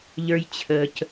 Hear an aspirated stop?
yes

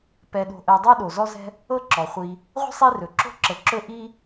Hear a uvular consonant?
yes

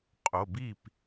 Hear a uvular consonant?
yes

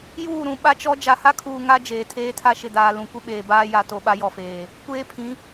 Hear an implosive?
yes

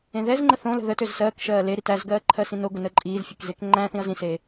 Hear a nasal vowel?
yes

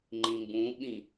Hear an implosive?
yes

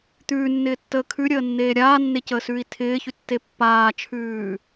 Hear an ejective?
no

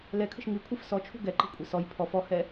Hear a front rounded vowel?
no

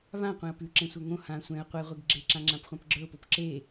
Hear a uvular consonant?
yes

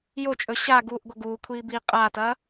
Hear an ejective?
yes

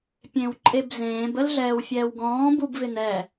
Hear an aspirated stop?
no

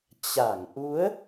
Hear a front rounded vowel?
no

